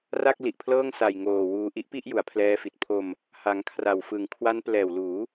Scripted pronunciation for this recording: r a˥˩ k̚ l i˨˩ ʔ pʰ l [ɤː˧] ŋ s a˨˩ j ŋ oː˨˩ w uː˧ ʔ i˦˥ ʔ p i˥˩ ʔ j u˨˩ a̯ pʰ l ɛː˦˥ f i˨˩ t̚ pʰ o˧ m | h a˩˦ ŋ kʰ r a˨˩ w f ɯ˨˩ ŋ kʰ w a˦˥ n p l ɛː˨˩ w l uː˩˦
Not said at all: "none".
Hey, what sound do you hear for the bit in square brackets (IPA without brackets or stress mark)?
ɤː˥˩